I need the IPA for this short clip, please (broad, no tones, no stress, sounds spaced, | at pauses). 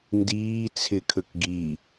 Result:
n d iː t͡sʰ ɪ kʰ ɵ k ɡ i